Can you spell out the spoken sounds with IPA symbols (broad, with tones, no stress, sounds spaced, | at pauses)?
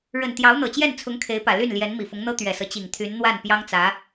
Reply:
ɻ ə˨˩ n t̪ j ɑ˧˥ ʊ̯ n̪ ɤ˨˩ t͡ɕ j ɛ˥˩ n t͡sʰ ʊ˧˥ ŋ kʰ e˧˥ ɪ̯ p ä˨˩ l y˥˩ n l j ɛ˧˥ n m i˨˩ f ʊ˧˥ ŋ n̪ ɤ˥ t̪ ɥ ɛ˨˩ s ɤ˦ t͡ɕ i˨˩ ŋ t̪ʰ y˧˥ n n̪ w a˥˩ n p j ɑ˥ ŋ t͡s ä˧˥